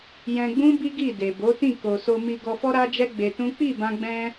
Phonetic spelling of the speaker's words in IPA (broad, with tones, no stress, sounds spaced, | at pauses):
j ɛ̃˧ ɡ͡b ũ˦ b i˦ ɡ i˦˨ d e˨ b o˨˦ t ĩ˦˨ k o˨ s o˧ m i˧ ɡ ɔ˧ f ɔ˦ ɾ a˦ d͡ʒ ɛ˦ ɡ͡b e˧ t ũ˦ k͡p i˦˨ b ã˧ ɡ͡b ɛ̃˧